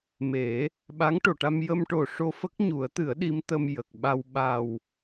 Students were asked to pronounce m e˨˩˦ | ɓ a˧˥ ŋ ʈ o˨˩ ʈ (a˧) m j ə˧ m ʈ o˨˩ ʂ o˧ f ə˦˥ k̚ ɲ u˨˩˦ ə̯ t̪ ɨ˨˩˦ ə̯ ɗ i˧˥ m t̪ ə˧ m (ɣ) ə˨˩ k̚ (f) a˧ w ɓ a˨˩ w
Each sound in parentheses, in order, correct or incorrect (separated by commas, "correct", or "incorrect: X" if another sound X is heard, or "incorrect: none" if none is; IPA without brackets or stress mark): correct, incorrect: j, incorrect: ɓ